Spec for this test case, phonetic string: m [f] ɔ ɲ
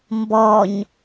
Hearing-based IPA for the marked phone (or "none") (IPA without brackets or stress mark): b